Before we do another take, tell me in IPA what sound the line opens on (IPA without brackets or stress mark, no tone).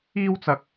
iː